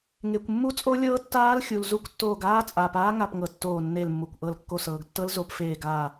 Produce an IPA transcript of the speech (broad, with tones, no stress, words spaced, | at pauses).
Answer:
ŋe˩kʷ mːu˦˥t͡sʼo˦˥lʲɤː˦˥ tːaː˦˥lxʲu˩l zu˧˩kʷtːoː˧˩ɡaː˦˥ t͡sʼaː˩paː˦˥ŋa˧˩pŋɤ˩ tːoː˧˩nːe˧˩lmːu˩kʷʔɤ˧˩l kːo˧˩sɤː˩ɡtːɤ˦˥l zo˧˩pfeː˧˩ɡaː˧˩